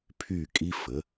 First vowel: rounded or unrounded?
rounded